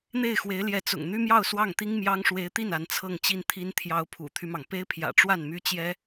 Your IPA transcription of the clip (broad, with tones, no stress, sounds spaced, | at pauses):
n̪ e˥˩ ɪ̯ x w e˧˥ ɪ̯ l j ɛ˧˥ t͡s ʊ̰˨˩ ŋ n̪ y˥ m j ɑ˥˧ ʊ̯ s w ɑ˥˩ ŋ t̪ i˥ ŋ m j ɑ˥ ŋ ʂ w e˧˥ ɪ̯ t̪ i˥˩ n a˧˥ n t͡sʰ ɤ˥˧ ŋ t͡ɕ i˥˩ n t̪ʰ i˥ n t̪ʰ j ɑ˧˥ ʊ̯ pʰ ṵ˨˩ t̪ʰ y˦ m ɑ˩ ŋ p e˥ ɪ̯ pʰ j ä̰˨˩ ʈ͡ʂ w a˥˩ n m y˥ t͡ɕ j ɛ˥